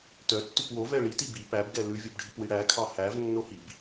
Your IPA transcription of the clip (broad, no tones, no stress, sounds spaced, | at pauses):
t œ tː ʉ p w o v ɛ ɭ i t i b i p æ b ɡ ɛ l ʉ vʲ o b ɖʱ i p w i ɽ æ kʰ ɑ h æ v nː o h i b